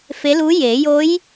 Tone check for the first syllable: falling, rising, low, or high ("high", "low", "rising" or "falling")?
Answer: rising